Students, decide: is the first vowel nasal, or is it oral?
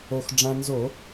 oral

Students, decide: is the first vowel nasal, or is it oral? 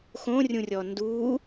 nasal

